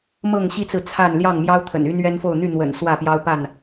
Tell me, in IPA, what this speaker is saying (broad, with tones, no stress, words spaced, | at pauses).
mɤ˥˨ŋɕi˦t͡sɹ̩˨ t͡sʰa˥˨n ljɑ˥˨ŋmjɑ˦ʊ̯ t̪ʰə̰˨˩ny˦nɥɛ˦nfo˥˨ʊ̯ n̪y˥˨n̪wə̰˨˩n swä˥˨pjɑ˦ʊ̯pa˥˨n